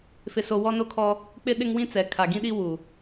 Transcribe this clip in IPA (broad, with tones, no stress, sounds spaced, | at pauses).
f ɪ˨ s o˨ w ɔ˦ n o˦ kʰ ɔ˦ | k͡p ɪ˦ ɗ ɪ˦ ŋ w ĩ˦ t͡s ɛ˨ kʰ a˨ ɡ ĩ˦ ɗ i˦ w u˨